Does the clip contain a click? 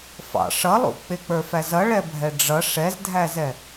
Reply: no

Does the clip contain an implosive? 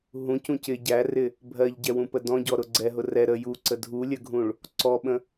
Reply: yes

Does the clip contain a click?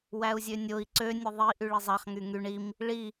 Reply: yes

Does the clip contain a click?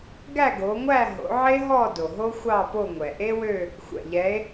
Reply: no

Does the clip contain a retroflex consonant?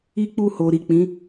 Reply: no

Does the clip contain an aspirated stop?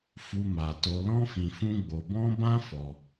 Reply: no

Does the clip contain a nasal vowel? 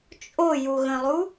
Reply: yes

